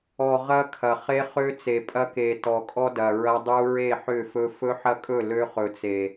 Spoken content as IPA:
ɔ˨ ʁɐ˦kʰɐ˨ χe˦χø˦ t͡se˨pʼɐ˦ke˨ tɔ˨kʼɔ˦ dɐ˨ɹɐ˦dˤu˦ ɹe˦˨ħʏ˦˨fɵ˦ fɵ˦ħɐ˦kʼɵ˦˨ lø˦χɵ˨t͡se˨

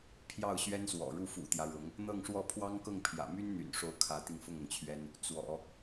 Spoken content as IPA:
pʰjɑ˥˩ʊ̯ɕɥɛ˥nswɔ̰˨˩ɻu˥˩ fṵ˨˩t̪jä˦ɻʊ˧˥ŋ | n̪ɤ˥˧ŋʂwɔ˥˩ pʰwɑ˥ŋkɤ˥˩ŋpʰjä̰˨˩ my˥nn̪y̰˨˩nʂo˧˥ʊ̯ kʰä˧˥t̪i˧ŋ fʊ˥˩ŋʊ˩ŋt͡ɕʰɥɛ˥n | t͡swɔ̰˨˩˦

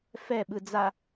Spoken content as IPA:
fɛ ɓɯd͡za

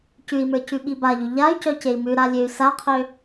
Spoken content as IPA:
cʉi̯mə˞ cʉɓibaʎʉ ʎay̯cœ cei̯mʉɾa lʲøy̯saqʰø

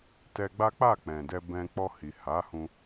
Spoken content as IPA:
tɛ˧ɡ͡ba˦ k͡pa˦˨k͡pɛ̃˨dɛ˧ bɛ̃˧ k͡pɔ˧hi˨ha˨˦hũ˧

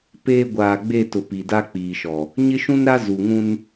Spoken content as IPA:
peː˦ ɡʷaː˨ɡ͡be˦˨ tʊ˨ pi˨da˦k͡piː˨ʃɔ˨ | ɲɪ˦ʃũ˦nɾa˦ zu˨ŋũ˦n

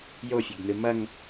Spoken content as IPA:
jofʲɘɡn̪ɨ mɐŋ

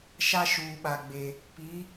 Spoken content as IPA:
ʃa˦ʃuː˨ɓa˨ɡ͡be˨ | pi˨˦

